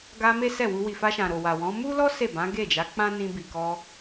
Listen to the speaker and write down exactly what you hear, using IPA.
ɡ a˧ m e˦ s ɛ˦˨ w u˧ w i˨ f a˧ ʃ ã˨ ɾ o˨ w a˨ w ɔ̃˨˦ m u˦ l ɔ˦ s e˦˨ b ã˨˦ ɡ e˦˨ d͡ʒ a˨˦ k͡p ã˦ n ĩ˧ b i˨ k ɔ˧

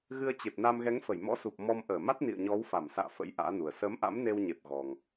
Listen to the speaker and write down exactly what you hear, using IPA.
ɣ ɨ˧ ə̯ t͡ɕ e˨˩ p̚ n a˧ m ɣ ɛ˨˦ ŋ f ə˧˩ j m ɔ̰˧˥ s u˨˩ p̚ m ɔ˧ m ʔ əː˧˩ m a˦˥ t̚ n ḭ˧˨ ə̯ ɲ ɔ˨˦ w f a˧˩ m s a̰ː˧˨ f ə̰˧˥ j ʔ a̰ː˧˥ n u˨˩ ə̯ s əː˨˦ m ʔ a̰˧˥ m n e˧ w ɲ e˨˩ p̚ ɣ ɔ˨˩ ŋ

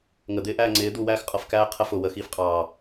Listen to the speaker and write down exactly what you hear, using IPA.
ŋ ə d̪ ɪː ʔ æː ŋ͡ǀ ɪː d̪ u w æː x qʼ ʌ f k æː qʰ ə f ʊ w ə x iː f qʼ ɑː

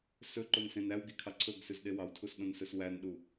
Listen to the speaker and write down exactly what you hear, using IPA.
s ɵ ǃ o n s ẽ n æ w ɡ i kʰ ɑ ǀʰ ɵ ɡ s ʉ z ɗ e w ɑ w tʰ u s ɗ õ n s ɵ s w æ n ɗ u

